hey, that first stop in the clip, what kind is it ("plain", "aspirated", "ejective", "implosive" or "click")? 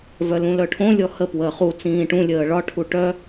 aspirated